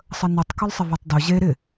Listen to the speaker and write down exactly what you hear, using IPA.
sˤənytˤkʊlˠ sˤɪvøtˤdʊ ʑe ɾɪ

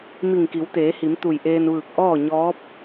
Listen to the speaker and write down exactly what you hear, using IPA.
mi˧˩ŋki˩˧wt̪eː˩˧hi˩˧m t̪u˧˩jʔeː˧nʋɯː˧˩k̚ ʔɔː˥˨ɲɔː˧˥p̚

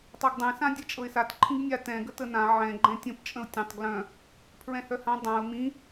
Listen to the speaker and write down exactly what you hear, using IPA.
tˤaɡdˤɛ̃sã dʲɛt͡ʃʼɤɪ̯sat ǃʰĩɡnʲa tɛ̃ ɡətənã ʕɛ̃ ɡ͡ǃɛ̃tʲə̃pt͡ʃʼə̃ʊ̯ tʲə̃tˤ ɡlœ̃ | pʰɹɛ̃hœhã dˤãʊ̯ mĩ

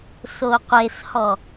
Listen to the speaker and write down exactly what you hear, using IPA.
soqʷeshɔ

